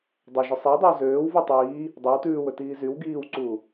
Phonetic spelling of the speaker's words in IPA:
dˤɵ ʒɵsˤiwdˤyw zøːw vutˤiː | dˤøw tʉːwɵ tiːzyw ɡiːwǀuː

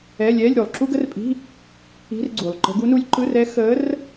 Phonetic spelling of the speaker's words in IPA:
ɛː˧˥˧lʲɛː˧˥˧lʲ ɾu˨˩lˠǁu˥ɡə˥rpʼi̤˧˥˧ | i̤˧˥˧rɡ͡ǀuː˨˩lˠǃə̤˧˥ ɡu˧˥nuː˧˥lʲ ǃɯ˧˥˧rɛ˧˥ xəː˧˥r

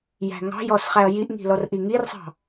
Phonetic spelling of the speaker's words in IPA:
jæ̤ŋɑ̤jɔs χæɐ̯jiʔŋi̤ lɔrʔiŋirsˤɑ̤

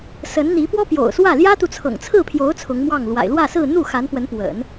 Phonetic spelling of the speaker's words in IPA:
sə˧˥nn̪i˧˥ pwɔ˥pjo̰˨˩ʊ̯swä˥˩ ljä˥t̪u˨ t͡sʰɤ̰˨˩ŋt͡sʰɹ̩˥˩pʰjo˧˥ʊ̯ t͡sʰʊ˧˥ŋmwɑ˥˩ŋ lwa̰˨˩ɪ̯lwä˥˧sɹ̩˥˧ n̪u˥˩ xa˧˥npwə˧˥npwə̰˨˩˦n

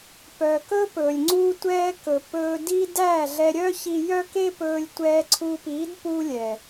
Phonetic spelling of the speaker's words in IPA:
pœ˨kɵ˦ pɵ˨lʲŋ͡ǀu˦tʷɛː˦ kɵ˨pɵː˧di˦ dæ˦˨ɮɛ˧ɾʲœ˦ çi˧jœ˦ke˦ pɵː˧lʲtʷɛː˧ǀʰu˧piː˨˦d pu˦lʲɛ˨

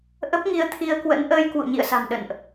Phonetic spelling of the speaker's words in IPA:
ʔə˦˥p̚ŋi˧ə̯t̪ʰi˧ə̯kwə̰˧˥n ʔəː˧jkwṵ˧˨ ɲḭ˧˨ə̯sa̤˨˩m ɗə̰˧˨nʔ

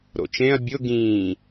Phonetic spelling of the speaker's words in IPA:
ɾo̰t͡ʃẽɐ̯ bʲʊ ɡĩː

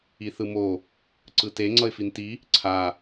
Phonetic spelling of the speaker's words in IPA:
iθɯmo | ǀɯte ŋ͡ǀʌɪ̯finti | ǀʰa

